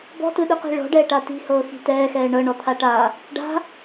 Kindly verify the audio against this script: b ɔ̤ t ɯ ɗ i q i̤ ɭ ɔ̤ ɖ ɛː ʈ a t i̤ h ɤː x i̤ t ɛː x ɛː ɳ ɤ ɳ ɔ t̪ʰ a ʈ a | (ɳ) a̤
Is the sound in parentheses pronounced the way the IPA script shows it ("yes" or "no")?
no